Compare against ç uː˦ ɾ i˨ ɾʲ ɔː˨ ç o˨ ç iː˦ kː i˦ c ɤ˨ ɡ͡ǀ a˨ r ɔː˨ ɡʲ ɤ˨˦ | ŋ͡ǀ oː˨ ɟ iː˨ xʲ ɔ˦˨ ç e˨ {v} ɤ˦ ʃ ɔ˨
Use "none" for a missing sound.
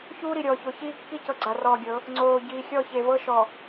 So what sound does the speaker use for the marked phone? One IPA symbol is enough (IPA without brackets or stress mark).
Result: v